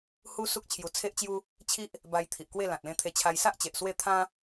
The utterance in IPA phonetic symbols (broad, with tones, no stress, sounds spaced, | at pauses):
h u˦ s u˦ k̚ t͡ɕʰ j u˧ t͡sʰ e˦ ʔ t͡ɕ j u˦ | t͡ɕʰ i˦ ʔ | b a˧ j t̪ʰ i˨ ʔ k w e˥˧ l ã˨ t̚ l ẽ˧ t̪ʰ e˧ t͡ɕʰ a˧ j s a˦ ʔ t͡ɕ e˨ ʔ s w e˥˧ t̪ʰ ã˦